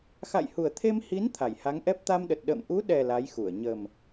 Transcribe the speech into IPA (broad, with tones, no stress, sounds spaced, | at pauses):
x a̰˧˨ j h u˨˩ ə̯ t̪ʰ e˧ m h i˨˦ n t̪ʰ a˧˩ j h a˨˦ ŋ ʔ ɛ˦˥ p̚ t̪ a˧ m ɗ ə˨˩ t̚ ɗ ə̰ː˧˨ m ʔ u˨˦ ɗ ɛ˨˩ l a˨˦ j x u˧˩ ə̯ ɲ ə˨˩ m